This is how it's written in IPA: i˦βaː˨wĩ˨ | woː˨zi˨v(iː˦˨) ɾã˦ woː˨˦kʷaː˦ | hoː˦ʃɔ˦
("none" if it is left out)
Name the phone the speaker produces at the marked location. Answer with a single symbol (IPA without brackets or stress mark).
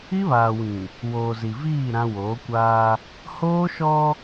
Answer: iː˦˨